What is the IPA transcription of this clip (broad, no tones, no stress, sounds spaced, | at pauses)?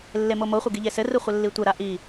lː e m o m o χʷ ə ɡ i ʎ e s ɘ r ɯ χʷ ɘ lː i tʷ ɘ ɾ a ʔ i